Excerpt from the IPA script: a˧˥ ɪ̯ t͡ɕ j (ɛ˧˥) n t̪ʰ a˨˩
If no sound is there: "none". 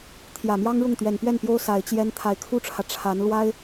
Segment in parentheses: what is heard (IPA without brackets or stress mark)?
ɛ˥